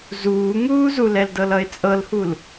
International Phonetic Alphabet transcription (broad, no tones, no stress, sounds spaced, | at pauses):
z uː ŋ uː z u l ɛ l d ɤ l ʌ ɪ̯ t͡sʼ ɤ l h u l